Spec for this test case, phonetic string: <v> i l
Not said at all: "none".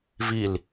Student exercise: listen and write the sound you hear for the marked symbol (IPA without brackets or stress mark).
v